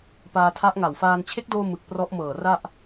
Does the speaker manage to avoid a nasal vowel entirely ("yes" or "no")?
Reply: yes